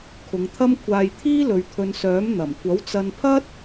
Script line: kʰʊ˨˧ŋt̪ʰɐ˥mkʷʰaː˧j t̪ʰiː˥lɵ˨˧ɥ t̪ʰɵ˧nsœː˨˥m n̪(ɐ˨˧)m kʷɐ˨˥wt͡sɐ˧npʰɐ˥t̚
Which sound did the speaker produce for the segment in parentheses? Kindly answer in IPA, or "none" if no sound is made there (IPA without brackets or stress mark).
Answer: ɐ˨˩